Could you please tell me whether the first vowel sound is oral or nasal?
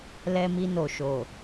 oral